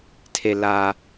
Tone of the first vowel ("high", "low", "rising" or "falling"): low